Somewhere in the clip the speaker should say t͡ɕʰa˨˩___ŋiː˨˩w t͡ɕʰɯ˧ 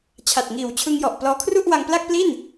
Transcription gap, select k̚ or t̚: t̚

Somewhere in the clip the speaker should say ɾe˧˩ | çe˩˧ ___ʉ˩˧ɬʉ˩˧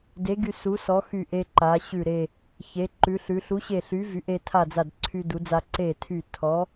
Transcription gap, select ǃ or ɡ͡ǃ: ǃ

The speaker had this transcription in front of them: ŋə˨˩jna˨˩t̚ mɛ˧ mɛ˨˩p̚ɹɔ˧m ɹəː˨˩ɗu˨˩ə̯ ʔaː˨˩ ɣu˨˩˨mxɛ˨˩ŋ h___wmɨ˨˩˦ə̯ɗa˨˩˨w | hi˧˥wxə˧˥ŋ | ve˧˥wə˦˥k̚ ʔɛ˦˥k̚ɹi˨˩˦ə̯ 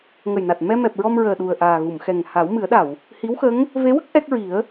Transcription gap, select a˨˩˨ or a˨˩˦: a˨˩˦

